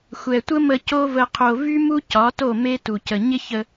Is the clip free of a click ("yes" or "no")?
yes